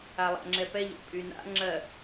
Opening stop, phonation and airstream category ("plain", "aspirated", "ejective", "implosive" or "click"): click